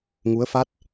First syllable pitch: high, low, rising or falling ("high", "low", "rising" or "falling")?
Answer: rising